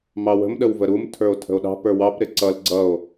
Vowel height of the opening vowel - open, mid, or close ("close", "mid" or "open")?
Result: open